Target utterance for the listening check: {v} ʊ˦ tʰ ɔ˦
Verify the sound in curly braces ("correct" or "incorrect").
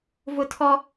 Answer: correct